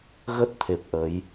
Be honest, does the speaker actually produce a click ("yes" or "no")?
no